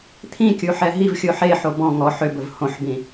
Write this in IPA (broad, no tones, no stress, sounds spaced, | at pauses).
t̪ʰ ĩ kʲ u ħ ɛ ɦ i v xʲ o ħ e ħ o b ɔ̃ ŋ ɔ ħ ʏ b ɵ v h õ ħ b ĩ